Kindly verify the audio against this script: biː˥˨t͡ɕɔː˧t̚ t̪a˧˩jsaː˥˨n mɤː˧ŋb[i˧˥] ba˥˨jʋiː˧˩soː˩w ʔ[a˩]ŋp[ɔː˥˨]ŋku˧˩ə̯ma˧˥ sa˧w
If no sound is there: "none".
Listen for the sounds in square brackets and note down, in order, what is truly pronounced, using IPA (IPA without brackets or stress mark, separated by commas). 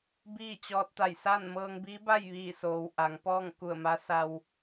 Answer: i˧˥, a˩˧, ɔː˥˨